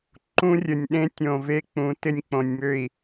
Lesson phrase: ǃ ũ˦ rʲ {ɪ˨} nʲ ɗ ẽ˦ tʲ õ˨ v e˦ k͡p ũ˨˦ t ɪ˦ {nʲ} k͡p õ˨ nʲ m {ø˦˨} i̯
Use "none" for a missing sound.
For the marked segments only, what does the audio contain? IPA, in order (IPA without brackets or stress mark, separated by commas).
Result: ə˨, nʲ, ø˦˨